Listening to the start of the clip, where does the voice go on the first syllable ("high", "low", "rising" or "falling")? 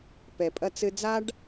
low